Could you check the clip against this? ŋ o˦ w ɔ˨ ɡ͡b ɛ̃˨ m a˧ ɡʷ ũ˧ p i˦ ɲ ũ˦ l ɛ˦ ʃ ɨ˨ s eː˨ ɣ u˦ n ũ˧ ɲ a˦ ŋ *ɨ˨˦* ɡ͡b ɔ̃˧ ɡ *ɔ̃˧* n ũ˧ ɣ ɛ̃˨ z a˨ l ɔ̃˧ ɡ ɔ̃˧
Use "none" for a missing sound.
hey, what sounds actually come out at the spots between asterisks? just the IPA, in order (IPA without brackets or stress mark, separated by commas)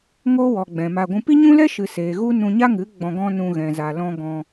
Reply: ɨ˨˦, ɔ̃˦